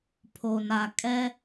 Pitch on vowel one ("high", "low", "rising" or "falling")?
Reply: low